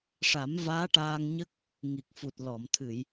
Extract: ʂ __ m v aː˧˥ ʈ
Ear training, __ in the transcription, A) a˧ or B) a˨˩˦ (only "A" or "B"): B